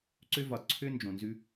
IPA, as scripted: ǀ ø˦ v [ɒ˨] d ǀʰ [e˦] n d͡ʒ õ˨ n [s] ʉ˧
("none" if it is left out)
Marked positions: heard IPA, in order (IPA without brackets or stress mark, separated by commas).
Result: ɒ˨, ø˦, z